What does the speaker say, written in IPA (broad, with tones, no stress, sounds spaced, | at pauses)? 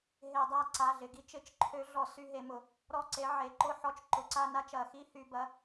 ɦ e˧˩˧ dˤ a˦˨ ǀ a˩˧˩ ɮ ɪ˩˧˩ ɡ i˨˥ t͡ʃ ɪ˧˩˧ t͡ʃ ǃʰ ø˨˥ ɮ ɔ˧˩˧ s y˦˨ ɦ e˧˩˧ m ʊ˧˩˧ | ɾ ɔ˦˨ ǀ e˨˥ ʕ e˩˧˩ ǃ ʊ˦˨ ħ ɔ˦˨ t͡ʃ ǃ ʊ˩˧˩ ǀ a˦˨ n a˦˨ t͡ʃ ɐ˧˩˧ x i˦˨ h y˧˩˧ b ɐ˩˧˩